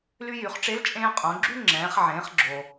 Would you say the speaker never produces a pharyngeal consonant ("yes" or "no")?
no